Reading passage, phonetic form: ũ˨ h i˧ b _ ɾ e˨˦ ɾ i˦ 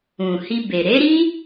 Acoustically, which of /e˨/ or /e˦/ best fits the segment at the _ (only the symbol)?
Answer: e˨